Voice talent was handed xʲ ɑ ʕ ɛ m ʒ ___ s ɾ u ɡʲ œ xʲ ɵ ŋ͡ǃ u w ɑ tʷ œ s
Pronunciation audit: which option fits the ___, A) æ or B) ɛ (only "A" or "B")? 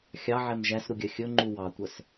A